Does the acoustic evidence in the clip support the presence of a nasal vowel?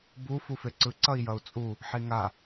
no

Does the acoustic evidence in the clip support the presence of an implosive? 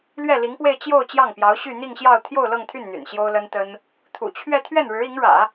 no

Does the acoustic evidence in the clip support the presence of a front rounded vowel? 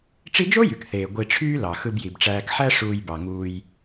yes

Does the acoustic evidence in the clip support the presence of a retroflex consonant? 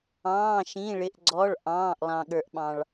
yes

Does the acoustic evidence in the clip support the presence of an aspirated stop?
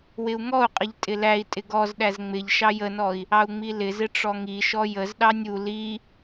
no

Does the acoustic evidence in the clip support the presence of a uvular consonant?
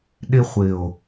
yes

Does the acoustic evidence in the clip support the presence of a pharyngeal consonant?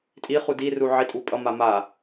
yes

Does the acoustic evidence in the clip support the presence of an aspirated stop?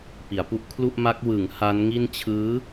yes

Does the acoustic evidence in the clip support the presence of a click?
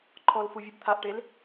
yes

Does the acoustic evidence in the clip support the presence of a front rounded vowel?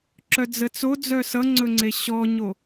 yes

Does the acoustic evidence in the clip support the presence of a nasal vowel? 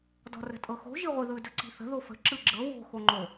no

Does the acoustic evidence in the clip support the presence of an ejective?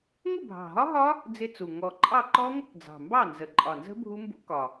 yes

